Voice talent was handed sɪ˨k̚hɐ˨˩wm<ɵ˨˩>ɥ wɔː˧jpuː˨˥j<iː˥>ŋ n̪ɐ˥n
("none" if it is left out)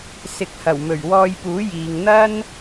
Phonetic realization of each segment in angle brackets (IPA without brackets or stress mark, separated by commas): ɵ˨˩, iː˨